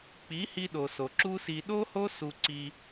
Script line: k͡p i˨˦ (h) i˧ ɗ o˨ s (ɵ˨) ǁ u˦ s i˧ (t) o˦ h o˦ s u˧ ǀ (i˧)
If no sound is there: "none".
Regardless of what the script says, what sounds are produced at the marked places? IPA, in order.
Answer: h, o˨, ɗ, i˧

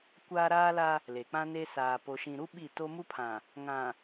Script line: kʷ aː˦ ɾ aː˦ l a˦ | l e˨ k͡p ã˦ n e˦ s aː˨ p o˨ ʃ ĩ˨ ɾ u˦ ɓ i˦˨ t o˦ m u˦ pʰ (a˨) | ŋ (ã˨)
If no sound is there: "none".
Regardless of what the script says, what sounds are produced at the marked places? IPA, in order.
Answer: ã˨, ã˨

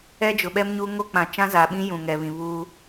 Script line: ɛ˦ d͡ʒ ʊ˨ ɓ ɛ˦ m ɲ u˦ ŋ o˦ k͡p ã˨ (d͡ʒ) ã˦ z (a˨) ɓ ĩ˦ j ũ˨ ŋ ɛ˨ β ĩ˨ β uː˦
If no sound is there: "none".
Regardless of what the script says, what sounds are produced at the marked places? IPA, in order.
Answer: t͡ʃ, a˨

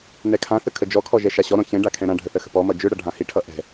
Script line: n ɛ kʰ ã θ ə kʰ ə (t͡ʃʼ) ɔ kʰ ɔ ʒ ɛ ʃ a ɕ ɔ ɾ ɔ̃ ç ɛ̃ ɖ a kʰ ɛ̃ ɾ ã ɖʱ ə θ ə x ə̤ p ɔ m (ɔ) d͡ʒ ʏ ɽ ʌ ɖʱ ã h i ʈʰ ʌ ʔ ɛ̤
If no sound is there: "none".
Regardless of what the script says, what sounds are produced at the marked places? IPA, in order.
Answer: d͡ʒ, ʌ

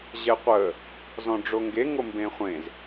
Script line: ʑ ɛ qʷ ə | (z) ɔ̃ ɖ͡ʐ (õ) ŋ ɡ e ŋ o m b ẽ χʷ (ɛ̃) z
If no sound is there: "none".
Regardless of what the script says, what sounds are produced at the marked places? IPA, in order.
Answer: z, o, ẽ

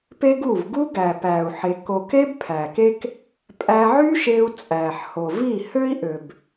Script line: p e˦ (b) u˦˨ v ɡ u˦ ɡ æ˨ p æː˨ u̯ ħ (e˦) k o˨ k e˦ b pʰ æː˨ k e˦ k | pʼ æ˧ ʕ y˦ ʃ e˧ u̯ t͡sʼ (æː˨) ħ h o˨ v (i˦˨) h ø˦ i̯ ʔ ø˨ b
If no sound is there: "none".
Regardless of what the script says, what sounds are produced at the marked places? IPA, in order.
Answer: ɡ, e˧, æː˨, i˦˨

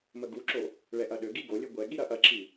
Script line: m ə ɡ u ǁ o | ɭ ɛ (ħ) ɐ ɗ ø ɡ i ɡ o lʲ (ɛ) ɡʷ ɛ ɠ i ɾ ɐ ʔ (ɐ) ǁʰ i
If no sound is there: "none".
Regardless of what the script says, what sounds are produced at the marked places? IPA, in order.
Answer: ʔ, ø, ɐ

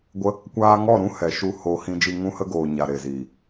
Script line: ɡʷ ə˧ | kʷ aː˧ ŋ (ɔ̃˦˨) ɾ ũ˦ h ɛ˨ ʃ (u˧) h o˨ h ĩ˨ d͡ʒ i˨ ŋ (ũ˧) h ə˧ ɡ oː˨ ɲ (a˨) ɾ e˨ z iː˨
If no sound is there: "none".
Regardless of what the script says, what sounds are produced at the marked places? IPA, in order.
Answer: ɔ˦˨, u˧, ũ˧, a˨

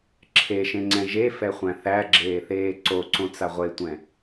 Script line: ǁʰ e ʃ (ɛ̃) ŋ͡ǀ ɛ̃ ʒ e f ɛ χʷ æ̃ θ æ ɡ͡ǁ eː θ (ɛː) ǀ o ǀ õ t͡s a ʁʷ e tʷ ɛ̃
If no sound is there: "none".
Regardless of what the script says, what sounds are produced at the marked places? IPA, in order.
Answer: ẽ, eː

